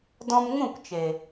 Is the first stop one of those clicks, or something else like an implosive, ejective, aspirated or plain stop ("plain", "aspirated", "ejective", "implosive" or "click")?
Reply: plain